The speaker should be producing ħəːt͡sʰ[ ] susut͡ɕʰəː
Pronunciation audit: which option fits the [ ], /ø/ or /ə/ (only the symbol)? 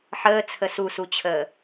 ə